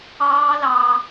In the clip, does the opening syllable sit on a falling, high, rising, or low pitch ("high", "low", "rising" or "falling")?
high